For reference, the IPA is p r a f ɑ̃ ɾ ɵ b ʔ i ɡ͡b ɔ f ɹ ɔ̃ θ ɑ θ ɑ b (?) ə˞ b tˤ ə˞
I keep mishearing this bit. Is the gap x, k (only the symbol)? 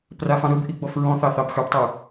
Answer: x